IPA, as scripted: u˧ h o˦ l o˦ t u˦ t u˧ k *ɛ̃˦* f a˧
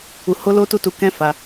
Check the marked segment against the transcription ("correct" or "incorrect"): correct